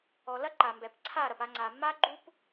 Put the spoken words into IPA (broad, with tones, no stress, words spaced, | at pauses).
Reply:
ɔ˨ lɐ˦ǃa˨mbɛ˨p ǀʰa˦˨ɾɐ˨pa˧ ŋ͡ǀa˨mːa˦ ɡ͡ǃu˦p